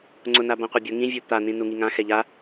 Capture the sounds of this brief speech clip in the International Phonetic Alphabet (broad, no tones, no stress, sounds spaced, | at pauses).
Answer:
ŋ͡ǀ ʊ n a b ã qʷ e bʲ ʊ ŋ ĩ vʲ u t̪ a n ĩ n u ŋ i ŋ ã x ɛ ʎ a